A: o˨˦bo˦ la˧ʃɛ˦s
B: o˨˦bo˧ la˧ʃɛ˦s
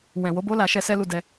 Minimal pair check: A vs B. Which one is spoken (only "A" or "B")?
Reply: A